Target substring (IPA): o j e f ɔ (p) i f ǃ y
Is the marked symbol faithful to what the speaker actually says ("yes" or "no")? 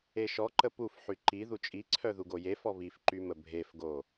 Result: no